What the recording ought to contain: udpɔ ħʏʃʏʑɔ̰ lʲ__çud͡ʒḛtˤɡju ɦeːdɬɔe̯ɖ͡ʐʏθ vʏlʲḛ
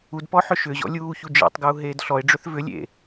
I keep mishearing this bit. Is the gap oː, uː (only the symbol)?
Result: uː